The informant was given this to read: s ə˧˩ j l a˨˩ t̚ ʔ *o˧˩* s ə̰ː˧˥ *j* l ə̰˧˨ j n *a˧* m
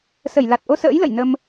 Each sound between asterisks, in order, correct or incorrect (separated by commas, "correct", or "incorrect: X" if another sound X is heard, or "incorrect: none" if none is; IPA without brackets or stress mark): incorrect: o˧, correct, incorrect: ə˧